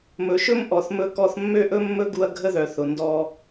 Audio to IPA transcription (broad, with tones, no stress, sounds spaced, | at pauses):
m ɵ˩ ʃ ɵ˥ m ʔ ɔ˩ θ m ɵ˧ k ɔ˧ θ mː ø˥ ʔ ɵ˥ mː ɵ˥ ɡ u˧ ɐ̯ ɡʱ ə˥ ð œ˩ θ ʊ˩ n d ɔ˧